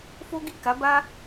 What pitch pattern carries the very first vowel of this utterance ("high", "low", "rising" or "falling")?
high